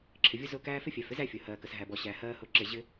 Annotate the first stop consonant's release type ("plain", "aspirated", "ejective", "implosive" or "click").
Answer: click